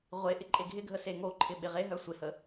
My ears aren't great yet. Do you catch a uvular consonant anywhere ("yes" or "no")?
yes